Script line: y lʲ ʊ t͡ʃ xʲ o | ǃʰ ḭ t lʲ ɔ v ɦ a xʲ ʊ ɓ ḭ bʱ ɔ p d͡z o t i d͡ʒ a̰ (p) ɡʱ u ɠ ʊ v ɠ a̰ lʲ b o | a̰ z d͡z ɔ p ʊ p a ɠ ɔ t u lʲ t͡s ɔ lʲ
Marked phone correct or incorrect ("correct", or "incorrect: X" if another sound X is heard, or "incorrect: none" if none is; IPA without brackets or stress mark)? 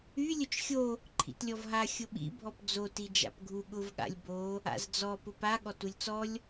correct